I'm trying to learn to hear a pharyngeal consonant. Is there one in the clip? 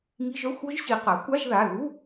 no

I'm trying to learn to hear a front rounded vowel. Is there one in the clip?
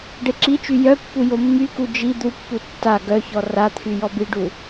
yes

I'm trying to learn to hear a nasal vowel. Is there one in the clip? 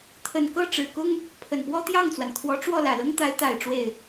no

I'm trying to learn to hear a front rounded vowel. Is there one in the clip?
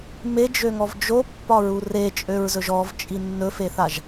yes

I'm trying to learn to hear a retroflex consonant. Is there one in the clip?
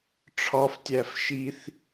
yes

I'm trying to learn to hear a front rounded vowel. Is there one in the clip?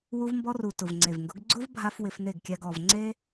no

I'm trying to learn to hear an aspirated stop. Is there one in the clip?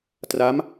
no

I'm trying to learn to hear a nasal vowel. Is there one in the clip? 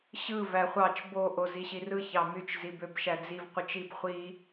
no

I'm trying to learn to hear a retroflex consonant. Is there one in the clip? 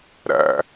no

